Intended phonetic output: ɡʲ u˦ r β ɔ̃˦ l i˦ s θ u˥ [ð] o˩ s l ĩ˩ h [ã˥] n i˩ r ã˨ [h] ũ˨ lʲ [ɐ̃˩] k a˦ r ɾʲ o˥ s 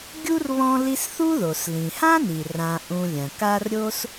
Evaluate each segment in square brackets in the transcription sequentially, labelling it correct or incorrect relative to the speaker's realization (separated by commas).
correct, correct, incorrect, correct